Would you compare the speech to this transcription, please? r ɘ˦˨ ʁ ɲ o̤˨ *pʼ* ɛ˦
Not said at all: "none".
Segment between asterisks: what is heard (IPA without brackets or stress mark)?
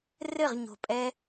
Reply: pʼ